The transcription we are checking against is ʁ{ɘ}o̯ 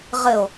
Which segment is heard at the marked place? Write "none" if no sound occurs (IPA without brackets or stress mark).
ɘ